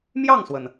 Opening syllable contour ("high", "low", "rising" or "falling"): falling